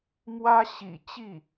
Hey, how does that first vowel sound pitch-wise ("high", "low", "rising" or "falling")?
high